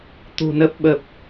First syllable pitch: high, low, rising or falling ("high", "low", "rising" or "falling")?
low